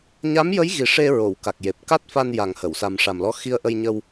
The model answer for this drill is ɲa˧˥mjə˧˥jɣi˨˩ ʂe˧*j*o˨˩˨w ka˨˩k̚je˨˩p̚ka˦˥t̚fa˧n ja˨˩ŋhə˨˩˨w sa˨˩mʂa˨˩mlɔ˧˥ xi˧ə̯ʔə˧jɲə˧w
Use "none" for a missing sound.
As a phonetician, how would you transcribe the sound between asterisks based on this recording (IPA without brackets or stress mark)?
ɹ